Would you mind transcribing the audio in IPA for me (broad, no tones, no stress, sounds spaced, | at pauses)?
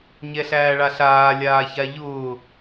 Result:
ɲ ɛ ɬ æː ɭ a ɬ aː lʲ aː ç a ʎ ʊː